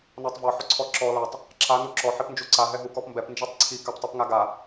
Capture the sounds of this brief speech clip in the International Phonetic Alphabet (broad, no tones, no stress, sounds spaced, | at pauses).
n ɔ tˤ v ɔ ħ ʏ ǀʰ ɔ ǁ ɔ l a tˤ | ǁ a n u ǁ ɔ ħ i p n d͡ʒ u ǀ a ɦ ɛ ɦ u k ɔ p m b ɛ p n d͡ʒ i tˤ ǀʰ i k a p tˤ i p ŋ a ɡ a